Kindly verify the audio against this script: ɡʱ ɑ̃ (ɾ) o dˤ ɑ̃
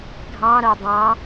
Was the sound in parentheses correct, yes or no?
yes